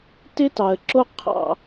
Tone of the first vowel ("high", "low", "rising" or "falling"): high